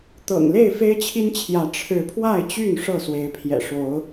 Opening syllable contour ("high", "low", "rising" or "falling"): low